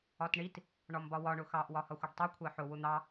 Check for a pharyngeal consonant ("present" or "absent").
present